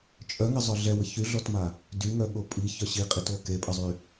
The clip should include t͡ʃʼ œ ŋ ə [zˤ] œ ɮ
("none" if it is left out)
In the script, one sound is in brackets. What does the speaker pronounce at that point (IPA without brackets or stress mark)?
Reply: zˤ